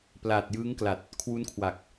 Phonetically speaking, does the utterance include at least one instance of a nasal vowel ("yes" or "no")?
no